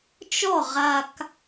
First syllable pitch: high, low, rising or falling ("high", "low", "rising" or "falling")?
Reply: falling